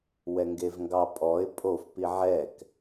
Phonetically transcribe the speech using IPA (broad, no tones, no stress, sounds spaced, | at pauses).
w ɛ ŋ ɡ e v ŋ ɡ ɑ pʼ ɔ ɪ̯ pʼ o f p i ʕ ɛ k